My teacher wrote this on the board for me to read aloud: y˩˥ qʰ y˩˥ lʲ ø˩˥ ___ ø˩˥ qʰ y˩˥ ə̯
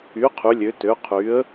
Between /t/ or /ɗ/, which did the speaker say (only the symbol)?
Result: t